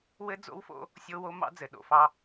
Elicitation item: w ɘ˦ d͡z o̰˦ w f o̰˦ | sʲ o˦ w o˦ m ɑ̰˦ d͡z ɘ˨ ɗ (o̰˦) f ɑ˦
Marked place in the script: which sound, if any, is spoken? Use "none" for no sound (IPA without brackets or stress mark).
o̰˨